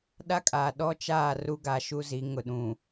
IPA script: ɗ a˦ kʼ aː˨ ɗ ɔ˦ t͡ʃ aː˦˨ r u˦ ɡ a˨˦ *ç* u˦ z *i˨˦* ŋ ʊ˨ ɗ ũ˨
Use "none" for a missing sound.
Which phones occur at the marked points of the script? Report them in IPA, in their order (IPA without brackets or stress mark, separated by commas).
ʃ, i˨˦